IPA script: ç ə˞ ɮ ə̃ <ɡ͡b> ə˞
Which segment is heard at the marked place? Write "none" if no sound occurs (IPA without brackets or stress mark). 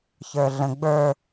ɡ͡b